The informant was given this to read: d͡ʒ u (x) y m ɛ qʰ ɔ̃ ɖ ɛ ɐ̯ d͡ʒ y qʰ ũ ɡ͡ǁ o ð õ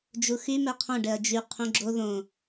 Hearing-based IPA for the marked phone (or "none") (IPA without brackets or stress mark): x